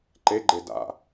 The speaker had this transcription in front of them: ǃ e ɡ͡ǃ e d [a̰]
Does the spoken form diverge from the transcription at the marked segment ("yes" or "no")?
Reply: no